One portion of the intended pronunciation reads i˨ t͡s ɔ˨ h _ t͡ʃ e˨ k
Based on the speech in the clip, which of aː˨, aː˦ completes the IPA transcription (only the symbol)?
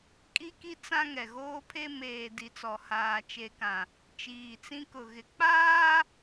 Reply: aː˨